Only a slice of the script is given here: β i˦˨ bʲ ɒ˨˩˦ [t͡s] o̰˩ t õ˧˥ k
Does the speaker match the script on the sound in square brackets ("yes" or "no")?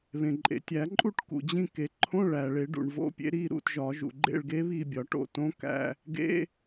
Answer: no